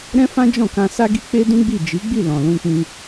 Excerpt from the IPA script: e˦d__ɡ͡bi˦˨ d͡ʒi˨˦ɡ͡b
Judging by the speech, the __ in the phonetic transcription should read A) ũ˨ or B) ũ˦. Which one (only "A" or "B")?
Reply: B